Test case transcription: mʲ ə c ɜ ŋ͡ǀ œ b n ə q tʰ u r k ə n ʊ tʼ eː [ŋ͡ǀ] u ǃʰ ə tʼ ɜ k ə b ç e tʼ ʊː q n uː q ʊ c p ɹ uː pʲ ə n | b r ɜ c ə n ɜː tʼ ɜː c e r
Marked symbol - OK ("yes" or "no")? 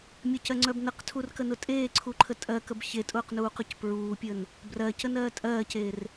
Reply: no